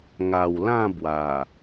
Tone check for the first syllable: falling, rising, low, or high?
low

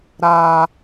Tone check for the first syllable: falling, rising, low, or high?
high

